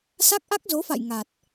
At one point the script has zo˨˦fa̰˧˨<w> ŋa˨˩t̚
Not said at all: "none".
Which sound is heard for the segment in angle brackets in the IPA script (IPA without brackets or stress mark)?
j